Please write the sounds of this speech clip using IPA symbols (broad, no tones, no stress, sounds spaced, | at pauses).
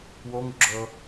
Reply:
w o ŋ u ɡ͡ǁ ɤ